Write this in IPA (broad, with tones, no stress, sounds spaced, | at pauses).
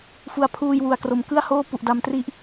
f u˨˩ a̯ pʰ uː˧ j w u˨˩ a̯ k r o˩˦ m k ɯ˥˩ a̯ h oː˥˩ p u˨˩ ʔ d a˧ m t r i˥˩ ʔ